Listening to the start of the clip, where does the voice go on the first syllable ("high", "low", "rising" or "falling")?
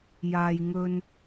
low